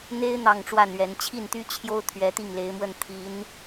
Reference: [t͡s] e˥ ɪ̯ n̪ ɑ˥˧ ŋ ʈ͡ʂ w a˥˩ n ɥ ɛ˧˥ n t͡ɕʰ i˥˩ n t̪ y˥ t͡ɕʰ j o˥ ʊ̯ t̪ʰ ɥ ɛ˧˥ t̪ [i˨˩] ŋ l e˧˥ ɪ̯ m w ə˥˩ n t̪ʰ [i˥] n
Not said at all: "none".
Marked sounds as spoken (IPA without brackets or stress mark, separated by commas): n̪, i˥˩, i˧˥